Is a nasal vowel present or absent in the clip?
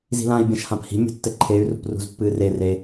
present